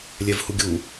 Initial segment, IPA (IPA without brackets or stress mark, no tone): lʲ